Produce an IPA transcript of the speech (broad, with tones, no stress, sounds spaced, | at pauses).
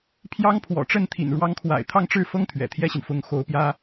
pʰ j ɑ˥ ŋ pʰ w ɔ̰˨˩ ʈ͡ʂ ə˥˩ n t̪ʰ ḭ˨˩ n ɻ w ɑ˧˥ ŋ kʰ w a̰˨˩ ɪ̯ t̪ʰ ɑ˥˧ ŋ ʈ͡ʂ ɻ̩˥˩ f ɤ˥ ŋ t̪ʰ ɥ ɛ̰˨˩ t̪ʰ j ɛ˥ ɕ i˨ n f ʊ˧˥ ŋ x o˧˥ ʊ̯ p j ä˥